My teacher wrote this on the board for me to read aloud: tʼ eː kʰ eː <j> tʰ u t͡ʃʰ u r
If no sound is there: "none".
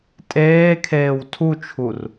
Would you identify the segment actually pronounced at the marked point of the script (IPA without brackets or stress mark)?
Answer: w